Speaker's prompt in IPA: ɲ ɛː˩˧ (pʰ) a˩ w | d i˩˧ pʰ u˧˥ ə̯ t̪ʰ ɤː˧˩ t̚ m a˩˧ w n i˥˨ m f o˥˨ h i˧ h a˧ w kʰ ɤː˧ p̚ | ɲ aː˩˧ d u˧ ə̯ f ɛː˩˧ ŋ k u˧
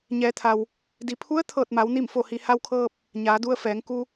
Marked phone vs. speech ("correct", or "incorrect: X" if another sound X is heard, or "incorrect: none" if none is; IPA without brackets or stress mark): incorrect: t̪ʰ